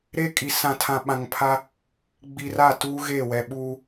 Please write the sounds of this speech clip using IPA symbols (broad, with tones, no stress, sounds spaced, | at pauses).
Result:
ɾ e˦ kʼ i˨ s ã˨ tʰ ã˨ ɓ ã˨ ŋ pʰ a˦ | ɡ͡b i˨ r a˦˨ t uː˦ ɣ e˦˨ w ɛ˨ ɓ uː˦